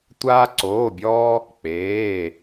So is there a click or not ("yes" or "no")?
yes